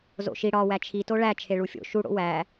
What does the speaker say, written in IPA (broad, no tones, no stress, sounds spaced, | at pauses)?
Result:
z o̰ ʃ i ɽ ɒ w æ t͡ʃʰ i t o ɭ æ t͡ʃʰ e ɭ u fʲ o̰ ʃ u ɽ o̰ w æ